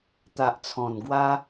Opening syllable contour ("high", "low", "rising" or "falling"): low